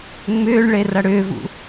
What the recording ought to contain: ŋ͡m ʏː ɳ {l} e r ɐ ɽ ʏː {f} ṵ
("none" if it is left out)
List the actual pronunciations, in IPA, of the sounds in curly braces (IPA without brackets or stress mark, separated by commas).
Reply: ɭ, v